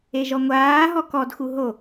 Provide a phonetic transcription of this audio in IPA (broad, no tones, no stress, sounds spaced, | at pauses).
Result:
e ʒ ɔ ŋʷ aː ɦ ɔ k ɔ d x u ɦ o